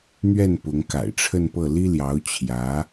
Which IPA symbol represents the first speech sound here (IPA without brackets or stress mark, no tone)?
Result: n̪